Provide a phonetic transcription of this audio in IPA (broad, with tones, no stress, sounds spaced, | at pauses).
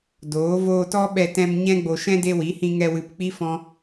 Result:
d oː˨˦ v oː˧ t ɔ˦ ɓ ɛ˧ t ɛ̃˧ m ɲ ɛ̃˦ ɡ͡b o˧ ʃ ɛ̃˦ d e˧ w i˨˦ h ĩ˧ ŋ ɛ˧ w ɨ˧ p k͡p i˦ f ɔ̃˦